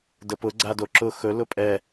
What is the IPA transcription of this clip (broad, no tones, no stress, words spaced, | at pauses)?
dəpʊ ɡ͡ǀadoǁʊ xɵ lʊpʼɛ